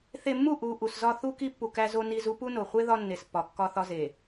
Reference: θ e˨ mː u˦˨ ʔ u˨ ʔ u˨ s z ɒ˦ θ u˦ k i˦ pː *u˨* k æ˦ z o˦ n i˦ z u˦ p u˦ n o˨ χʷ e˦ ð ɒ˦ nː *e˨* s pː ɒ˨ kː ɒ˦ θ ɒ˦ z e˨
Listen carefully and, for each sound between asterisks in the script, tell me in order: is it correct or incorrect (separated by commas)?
correct, correct